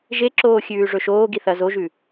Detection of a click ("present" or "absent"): present